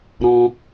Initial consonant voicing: voiced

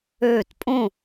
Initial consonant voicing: voiceless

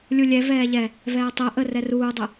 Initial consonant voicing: voiced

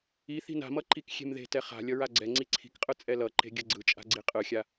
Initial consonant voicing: voiceless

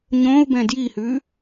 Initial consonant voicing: voiced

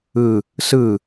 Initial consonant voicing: voiceless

